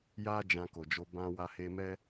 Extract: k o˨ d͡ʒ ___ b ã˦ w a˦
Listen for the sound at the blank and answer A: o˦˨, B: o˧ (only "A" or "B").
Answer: B